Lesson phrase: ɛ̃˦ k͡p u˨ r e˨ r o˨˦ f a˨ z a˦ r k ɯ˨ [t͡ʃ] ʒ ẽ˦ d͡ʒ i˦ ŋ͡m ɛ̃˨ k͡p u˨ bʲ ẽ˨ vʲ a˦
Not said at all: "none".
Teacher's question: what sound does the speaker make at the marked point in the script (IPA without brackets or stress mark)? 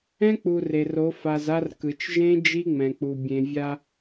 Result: t͡ʃ